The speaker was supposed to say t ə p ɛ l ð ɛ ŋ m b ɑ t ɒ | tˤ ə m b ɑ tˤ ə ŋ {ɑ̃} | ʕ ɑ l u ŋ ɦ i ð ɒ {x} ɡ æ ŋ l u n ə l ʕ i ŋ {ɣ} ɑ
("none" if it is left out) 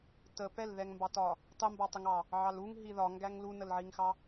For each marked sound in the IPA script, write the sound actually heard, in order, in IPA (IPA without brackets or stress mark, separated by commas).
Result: ɑ, ŋ, x